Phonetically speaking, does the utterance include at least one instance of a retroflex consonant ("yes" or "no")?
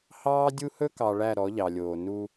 yes